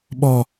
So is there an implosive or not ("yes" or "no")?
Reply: yes